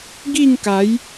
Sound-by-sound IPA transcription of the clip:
ɡi˥˧ŋka˨˦j

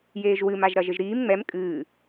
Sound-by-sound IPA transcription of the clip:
jeːʒwɨm aʒɾɐʒɘʒɾiːm ŋ͡mɛm kʼɨː

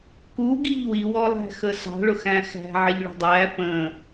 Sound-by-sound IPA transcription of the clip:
kuɡiʎ wiwɔlˠæ̤xə sɑ̤ɭʊxæ̃ xæ̤ʕɪʎ ɭə̤dˤæ pə̃

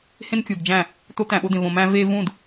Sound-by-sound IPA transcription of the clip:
hẽ˦nkʲu˨dd͡ʒæ̃˦˨ | t̪o˦ t̪æ̃˨ɓo˧d̪ẽ˨v õ˨mæ̃˧ ve˧vũ˦˨d

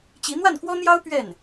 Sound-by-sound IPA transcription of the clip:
t͡ɕi˧˥ n̪wa˥˩nkwɔ˥n̪jɑ˥ʊ̯ pɥɛ˥˩n

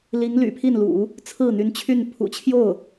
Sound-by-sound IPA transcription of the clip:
li˧˥ŋ ly̰˨˩pʰi˥˩nlṵ˨˩˦ | t͡sʰɹ̩˥˩n̪y˧˥nt͡ɕʰy˥˩n pʰṵ˨˩t͡ɕʰjo˥˩ʊ̯

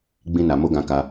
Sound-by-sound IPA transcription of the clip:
ɡ͡bĩ˦na˧ mo˦ɡã˧ka˧

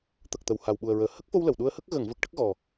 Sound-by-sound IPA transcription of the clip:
t̪ə˨˩k̚t̪ə˨˩˨w ha˨˩wɓu˨˩ə̯ɹəː˨˩˨ hə˦˥k̚fo˧w lə˨˩˨wɗu˧ə̯hə˦˥k̚ ɣə˨˩˨ŋvə˨˩k̚ ʈə˦˥k̚ɣɔ˨˩

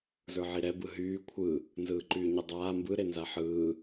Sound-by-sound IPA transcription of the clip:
zə˞ʕiɾɛ bɯɦyː kʷʰɯ | nzɯːǃyːɲidˤaː mbɯ ɾenzaħɯː

